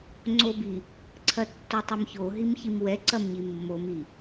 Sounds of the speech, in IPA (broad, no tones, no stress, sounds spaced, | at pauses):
ŋ͡ǀ o b i | ǀʰ ɐ tː o tˤ ɛ m ç o ɦ i m ç i m w ɛ ǀ ɐ m ɲ i mː o m i